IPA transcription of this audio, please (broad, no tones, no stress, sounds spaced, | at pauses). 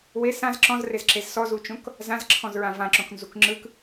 w e s ã z ǁ ɔ̃ z r e z ǁ e z s ɔ z u t͡ʃ õ k | z ã z ǁʰ ɔ̃ z ɹ ã v ã ǁ õ k n z u k ŋ͡ǁ ɯ k